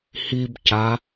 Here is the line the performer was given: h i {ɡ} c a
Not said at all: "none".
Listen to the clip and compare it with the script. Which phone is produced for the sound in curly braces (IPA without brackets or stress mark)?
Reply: b